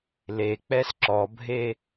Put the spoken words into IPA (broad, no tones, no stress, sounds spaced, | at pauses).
l e k͡p ɛ s ǁ ɔ bʱ e